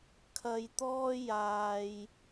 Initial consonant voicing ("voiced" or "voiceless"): voiceless